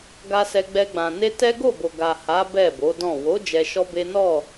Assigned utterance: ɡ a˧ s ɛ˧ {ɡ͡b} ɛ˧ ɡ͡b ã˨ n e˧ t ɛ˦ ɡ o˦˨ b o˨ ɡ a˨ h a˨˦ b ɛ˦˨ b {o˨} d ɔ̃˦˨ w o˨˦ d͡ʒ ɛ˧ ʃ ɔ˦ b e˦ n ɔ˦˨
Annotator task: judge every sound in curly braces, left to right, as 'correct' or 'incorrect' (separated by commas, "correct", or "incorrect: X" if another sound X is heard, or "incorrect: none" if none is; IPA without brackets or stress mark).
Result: correct, incorrect: o˨˦